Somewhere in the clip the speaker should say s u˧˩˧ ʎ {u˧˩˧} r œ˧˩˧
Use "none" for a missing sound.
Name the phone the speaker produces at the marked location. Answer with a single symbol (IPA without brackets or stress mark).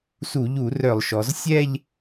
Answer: u˧˩˧